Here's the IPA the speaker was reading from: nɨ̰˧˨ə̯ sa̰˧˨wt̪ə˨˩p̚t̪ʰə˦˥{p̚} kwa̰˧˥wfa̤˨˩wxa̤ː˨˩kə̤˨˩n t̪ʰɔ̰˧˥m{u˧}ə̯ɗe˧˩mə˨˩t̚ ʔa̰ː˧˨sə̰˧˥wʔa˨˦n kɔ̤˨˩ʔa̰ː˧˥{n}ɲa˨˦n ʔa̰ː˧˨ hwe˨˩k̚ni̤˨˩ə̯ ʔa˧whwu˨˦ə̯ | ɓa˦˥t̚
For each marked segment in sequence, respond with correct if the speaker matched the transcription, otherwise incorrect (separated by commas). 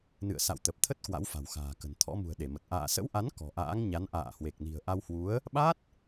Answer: incorrect, incorrect, incorrect